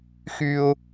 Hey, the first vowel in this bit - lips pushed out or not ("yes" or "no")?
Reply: yes